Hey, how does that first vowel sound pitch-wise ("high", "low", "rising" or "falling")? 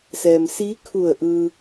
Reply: low